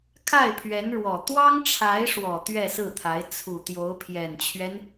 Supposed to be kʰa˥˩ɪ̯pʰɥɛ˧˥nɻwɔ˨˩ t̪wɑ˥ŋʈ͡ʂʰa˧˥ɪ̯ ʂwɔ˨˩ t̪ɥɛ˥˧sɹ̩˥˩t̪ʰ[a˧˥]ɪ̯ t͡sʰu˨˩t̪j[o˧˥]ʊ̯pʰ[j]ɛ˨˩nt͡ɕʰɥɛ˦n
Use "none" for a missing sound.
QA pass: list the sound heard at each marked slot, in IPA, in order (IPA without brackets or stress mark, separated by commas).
a˧˥, o˧˥, j